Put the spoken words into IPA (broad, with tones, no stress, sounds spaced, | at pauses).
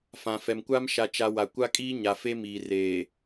f ã˨ f ɛ˨ m kʷ a˦ m ʃ a˨ t͡ʃ a˨ w a˨ kʷ a˦ kʼ iː˦ ɲ a˨ f e˦ m iː˨ r eː˨